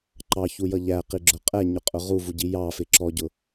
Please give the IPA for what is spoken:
ǃ ɑ ç u j ʌ ʎ æ q i ɡ͡ǁ ʊ qʼ ɛ ɲ ʊ qʼ ʊ ʁ u v u ɟ i j ɑ f ɪ ǁ ɔ ɟ ʊ

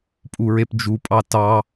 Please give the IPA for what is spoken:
pʼ u ɹ e p d͡ʒ u pʼ ɑ t ɑ

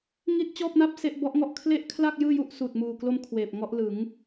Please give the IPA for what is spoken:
ŋ i˥˩ t̚ t͡ɕ ɔː˥˩ p̚ n a˥˩ p̚ s e˥˩ ʔ b ɔ˦˥ ʔ ŋ ɔ˥˩ ʔ kʰ l e˥˩ ʔ kʰ l a˥˩ k̚ j ɯː˥˩ j u˥˩ ʔ s uː˨˩ t̚ m uː˨˩ k l o˧ m kʰ w eː˨˩ p̚ ŋ ɔ˦˥ ʔ l ɯ˩˦ ŋ

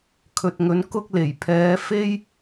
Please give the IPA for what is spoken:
kʰ ɵ˨ t̚ ŋ ɵ˨˥ n k ʊ˥ k̚ l e˨˩ j pʰ ɛː˨˥ f e˥ j

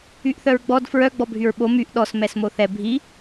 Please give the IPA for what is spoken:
y ʔ θ œ ɹ ɡ͡b ɔ d f ɹ œ ɡ͡b ɔ bʱ y ɹ ɓ o m y ʔ ɗ ɔ s m ɛ s m o θ ɛ bʱ i

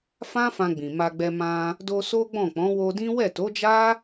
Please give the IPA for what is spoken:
f ã˦ f ã˧ ɡ͡b ĩ˨ m a˧ ɡ͡b ɛ˧ m ã˧ | d o˧ s o˦ ɡ͡b ɔ̃˦˨ k͡p ɔ̃˨˦ w o˧ d ĩ˦ w ɛ˦˨ t o˨˦ d͡ʒ a˦

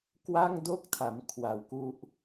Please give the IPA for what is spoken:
k w a˥˩ ŋ d o˥˩ k̚ tʰ a˩˦ m kʰ w a˨˩ w k u˦˥ ʔ

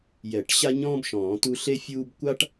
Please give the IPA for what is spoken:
j ɛ˨˩˦ ʈ ɕ a˥ ɲ ɔ̃ː˥ b ʃ ɔ̃ː˨˩˦ t u˥ ɬ e˥ fʲ uː˥ b kʷ a˥ ʈ

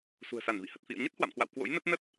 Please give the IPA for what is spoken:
s ṳ˨˩ ə̯ s a˧˩ n v ḭ˧˨ h ə˨˩ t̚ f ḭ˧˨ ə̯ ɲ ə˦˥ t̚ h w a̰˧˨ m k w a̰˧˨ w k w o̰˧˥ j n ə˦˥ t̚ n ə˦˥ t̚

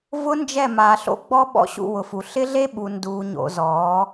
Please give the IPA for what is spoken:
v ʊ˦ n d͡ʒ ɛ˦˨ m aː˨ ɬ o̰˦ ɡ͡b ɔ˦ ɓ ɔ̰˦ ɕ ṵ˦˨ w ʊ˨ f u˨ ɬ ɪ˦ ɮ e˦ ɓ u˨ n d uː˨ ɲ o̰˨ z ɔː˨˦

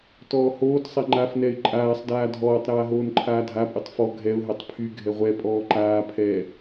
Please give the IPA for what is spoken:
t ɔː h oː t sˤ ɛ ŋ͡ǃ a f n ɛ ɪ̯ ǃʼ aː sˤ d aː dʱ ɔː tˤ ɾ aː ɦ oː n ǃʰ aː dʱ a pʼ y tˤ f ɔ ɡʱ ɛ ʊ̯ ɦ ɛ tˤ pʰ y ɡʱ ɛ ʁʷ ɛ pʼ ɔː ǃ aː pʰ ɛː

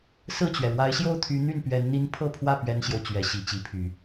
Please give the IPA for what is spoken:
s ɹ̩˥˩ t͡ɕ ɥ ɛ˩ ɻ w a˧˥ ɪ̯ ɕ j o˥˩ ʊ̯ t̪ʰ y˧˥ n̪ y˥˩ n p ɥ ɛ˧˥ n n̪ i˥ n pʰ ɤ˥˧ pʰ w ä˥˩ p ɥ ɛ˥ n ɕ j o˨ ʊ̯ t͡ɕ ɥ ɛ˧˥ ɕ i˨˩ t͡ɕ i˧˥ pʰ y˨˩˦

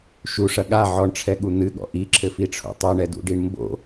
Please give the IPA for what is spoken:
ʃ u ʂ ɐ ɠ a ʕ ɔ ɳ ʈ͡ʂʰ ɛ ɠ u n̪ ɨ ɠ ɔ̰ ʔ i ǁʰ ɘ f i ʈ͡ʂʰ o̰ tˤ o ɳ ɛ d ṵ ɖ i ɳ m b o̰

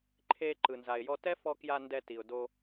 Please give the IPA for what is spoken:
ǃʰ e˧ ǃ ɯ˩ n z a˩ ɪ̯ j ɔ˧ t ɛ˥ f ɔ˧ k j a˧ n d ɛ˧ t i˩ ʊ̯ d o˧

